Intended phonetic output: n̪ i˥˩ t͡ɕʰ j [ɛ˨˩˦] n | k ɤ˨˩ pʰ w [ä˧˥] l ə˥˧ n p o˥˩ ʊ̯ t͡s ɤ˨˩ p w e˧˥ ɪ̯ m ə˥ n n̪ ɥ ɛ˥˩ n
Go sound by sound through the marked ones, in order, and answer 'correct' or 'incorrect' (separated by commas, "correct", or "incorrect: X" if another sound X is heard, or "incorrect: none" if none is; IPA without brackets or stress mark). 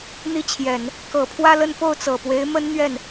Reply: correct, incorrect: ä˥˧